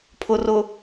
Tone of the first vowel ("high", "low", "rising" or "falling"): low